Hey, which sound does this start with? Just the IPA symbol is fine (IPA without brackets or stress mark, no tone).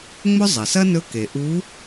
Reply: ŋ͡m